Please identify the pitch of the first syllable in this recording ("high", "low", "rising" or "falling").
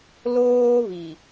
high